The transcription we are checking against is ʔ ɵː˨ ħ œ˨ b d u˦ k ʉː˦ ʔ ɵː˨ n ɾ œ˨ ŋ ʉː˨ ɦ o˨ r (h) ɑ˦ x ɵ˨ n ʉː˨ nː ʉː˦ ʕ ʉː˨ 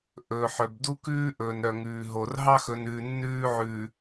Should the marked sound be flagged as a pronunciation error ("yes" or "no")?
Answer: yes